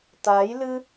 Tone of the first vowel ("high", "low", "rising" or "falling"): rising